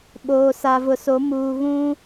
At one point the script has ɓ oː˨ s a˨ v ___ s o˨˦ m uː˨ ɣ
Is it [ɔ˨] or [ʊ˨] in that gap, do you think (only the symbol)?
ʊ˨